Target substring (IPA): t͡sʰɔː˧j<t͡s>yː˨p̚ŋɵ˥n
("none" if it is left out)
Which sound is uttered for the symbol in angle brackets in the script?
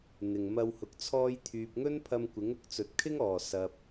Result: t̪ʰ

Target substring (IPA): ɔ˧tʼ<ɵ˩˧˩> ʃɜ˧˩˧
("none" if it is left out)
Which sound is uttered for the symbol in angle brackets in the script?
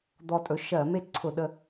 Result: ɵ˩˧˩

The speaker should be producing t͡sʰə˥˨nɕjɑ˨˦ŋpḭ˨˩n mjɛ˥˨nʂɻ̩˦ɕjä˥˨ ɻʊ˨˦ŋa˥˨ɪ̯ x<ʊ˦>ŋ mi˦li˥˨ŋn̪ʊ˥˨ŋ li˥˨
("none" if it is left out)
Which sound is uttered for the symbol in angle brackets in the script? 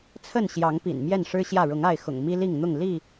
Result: ʊ̰˨˩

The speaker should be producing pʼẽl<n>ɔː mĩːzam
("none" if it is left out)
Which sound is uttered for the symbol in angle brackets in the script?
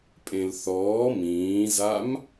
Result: θ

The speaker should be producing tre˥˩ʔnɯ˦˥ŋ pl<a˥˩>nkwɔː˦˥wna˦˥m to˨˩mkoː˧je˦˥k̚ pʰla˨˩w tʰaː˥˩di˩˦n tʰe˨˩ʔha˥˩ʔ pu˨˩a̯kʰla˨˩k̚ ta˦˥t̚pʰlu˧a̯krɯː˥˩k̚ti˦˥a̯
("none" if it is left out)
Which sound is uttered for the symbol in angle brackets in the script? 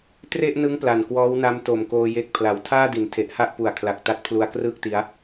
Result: a˨˩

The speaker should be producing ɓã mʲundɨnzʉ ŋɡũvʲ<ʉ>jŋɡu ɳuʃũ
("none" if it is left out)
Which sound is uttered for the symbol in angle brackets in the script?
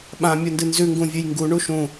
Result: ʉ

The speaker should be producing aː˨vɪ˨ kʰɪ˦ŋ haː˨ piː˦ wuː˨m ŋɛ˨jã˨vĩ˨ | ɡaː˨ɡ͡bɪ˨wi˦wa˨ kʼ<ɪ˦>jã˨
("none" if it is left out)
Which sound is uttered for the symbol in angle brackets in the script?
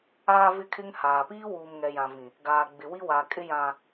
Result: ɪ˦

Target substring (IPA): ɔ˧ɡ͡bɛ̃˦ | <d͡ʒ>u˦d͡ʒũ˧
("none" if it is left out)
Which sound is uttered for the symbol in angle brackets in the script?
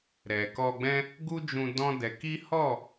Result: ɡ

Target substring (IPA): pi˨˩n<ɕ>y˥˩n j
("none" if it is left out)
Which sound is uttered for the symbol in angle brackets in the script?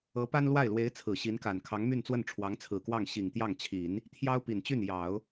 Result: t͡ɕ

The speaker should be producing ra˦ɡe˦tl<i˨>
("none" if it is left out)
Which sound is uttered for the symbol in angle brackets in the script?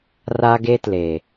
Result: e˨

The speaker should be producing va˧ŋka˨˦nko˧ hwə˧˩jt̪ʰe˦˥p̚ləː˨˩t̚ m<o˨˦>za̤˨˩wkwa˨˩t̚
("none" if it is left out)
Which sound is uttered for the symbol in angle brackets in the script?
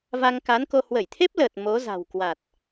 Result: o˨˦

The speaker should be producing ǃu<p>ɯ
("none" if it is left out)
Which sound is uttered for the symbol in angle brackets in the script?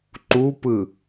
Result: p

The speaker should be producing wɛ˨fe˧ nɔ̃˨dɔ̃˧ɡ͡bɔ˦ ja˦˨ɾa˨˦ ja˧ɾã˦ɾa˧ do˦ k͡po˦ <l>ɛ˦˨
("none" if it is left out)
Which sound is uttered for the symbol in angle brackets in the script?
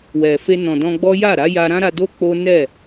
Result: n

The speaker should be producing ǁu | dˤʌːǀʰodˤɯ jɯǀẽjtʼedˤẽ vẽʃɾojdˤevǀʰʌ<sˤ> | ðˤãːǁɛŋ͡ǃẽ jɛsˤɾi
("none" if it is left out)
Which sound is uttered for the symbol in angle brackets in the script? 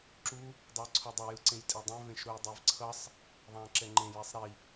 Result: sˤ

